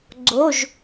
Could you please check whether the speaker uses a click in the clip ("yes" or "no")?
yes